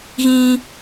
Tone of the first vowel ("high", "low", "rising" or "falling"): high